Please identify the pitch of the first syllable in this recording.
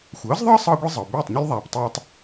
rising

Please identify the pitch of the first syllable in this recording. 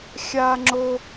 high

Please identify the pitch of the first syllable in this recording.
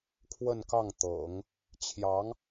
falling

